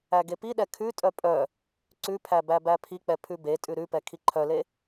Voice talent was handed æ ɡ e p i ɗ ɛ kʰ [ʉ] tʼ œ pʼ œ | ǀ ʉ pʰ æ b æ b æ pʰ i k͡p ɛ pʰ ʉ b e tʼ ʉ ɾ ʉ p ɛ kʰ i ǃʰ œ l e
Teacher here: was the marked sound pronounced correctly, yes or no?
yes